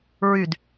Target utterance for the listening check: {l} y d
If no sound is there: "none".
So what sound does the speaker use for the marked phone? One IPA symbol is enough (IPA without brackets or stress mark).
ɹ